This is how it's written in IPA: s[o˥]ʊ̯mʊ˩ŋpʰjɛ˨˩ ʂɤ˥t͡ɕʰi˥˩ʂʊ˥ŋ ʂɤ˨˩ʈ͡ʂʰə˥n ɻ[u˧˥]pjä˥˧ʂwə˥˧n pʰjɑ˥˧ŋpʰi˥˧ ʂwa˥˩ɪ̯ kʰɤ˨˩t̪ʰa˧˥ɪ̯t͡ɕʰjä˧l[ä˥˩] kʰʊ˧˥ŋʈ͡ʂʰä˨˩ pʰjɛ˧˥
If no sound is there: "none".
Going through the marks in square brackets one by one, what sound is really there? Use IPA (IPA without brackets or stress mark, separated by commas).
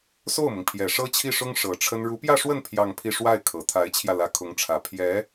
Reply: o˥˩, u˧˥, ä˧˥